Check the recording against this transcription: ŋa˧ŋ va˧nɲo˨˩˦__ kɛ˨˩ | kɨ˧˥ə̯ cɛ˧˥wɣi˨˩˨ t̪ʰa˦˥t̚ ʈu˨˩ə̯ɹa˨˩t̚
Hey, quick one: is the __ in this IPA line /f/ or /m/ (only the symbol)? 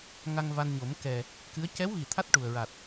m